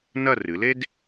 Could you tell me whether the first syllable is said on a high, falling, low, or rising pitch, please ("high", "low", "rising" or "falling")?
falling